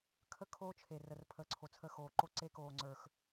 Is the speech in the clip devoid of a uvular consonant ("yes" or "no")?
yes